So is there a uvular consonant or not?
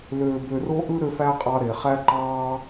yes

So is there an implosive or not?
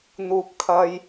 no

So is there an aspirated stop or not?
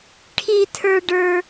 yes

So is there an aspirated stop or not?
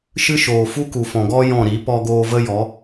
no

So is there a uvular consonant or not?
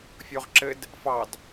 yes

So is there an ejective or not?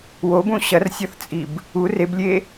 yes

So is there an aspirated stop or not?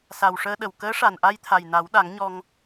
yes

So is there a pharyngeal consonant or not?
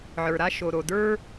yes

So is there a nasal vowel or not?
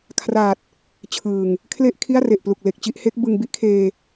no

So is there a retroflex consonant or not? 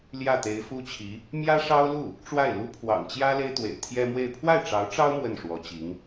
yes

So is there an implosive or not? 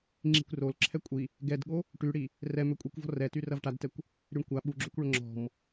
yes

